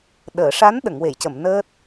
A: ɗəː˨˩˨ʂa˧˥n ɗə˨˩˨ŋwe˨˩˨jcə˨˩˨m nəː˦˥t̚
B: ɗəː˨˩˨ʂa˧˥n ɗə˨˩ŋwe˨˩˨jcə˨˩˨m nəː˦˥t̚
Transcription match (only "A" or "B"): A